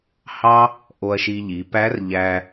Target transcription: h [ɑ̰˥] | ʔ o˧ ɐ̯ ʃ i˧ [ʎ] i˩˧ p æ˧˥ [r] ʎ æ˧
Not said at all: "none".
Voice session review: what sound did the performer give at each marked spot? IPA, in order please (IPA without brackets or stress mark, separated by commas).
ɑ˥, ʎ, r